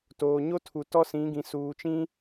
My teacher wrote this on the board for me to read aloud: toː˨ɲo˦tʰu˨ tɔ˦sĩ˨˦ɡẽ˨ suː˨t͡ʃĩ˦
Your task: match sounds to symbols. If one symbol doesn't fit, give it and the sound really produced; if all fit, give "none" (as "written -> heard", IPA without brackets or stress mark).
ẽ˨ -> ĩ˨